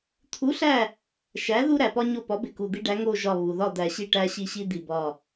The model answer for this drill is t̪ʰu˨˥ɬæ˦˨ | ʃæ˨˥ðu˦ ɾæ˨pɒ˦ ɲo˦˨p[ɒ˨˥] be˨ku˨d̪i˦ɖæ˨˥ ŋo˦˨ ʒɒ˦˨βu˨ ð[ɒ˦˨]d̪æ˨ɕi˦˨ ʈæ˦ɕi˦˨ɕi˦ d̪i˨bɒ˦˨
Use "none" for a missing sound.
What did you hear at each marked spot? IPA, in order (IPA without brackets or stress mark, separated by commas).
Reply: ɒ˨˥, ɒ˦˨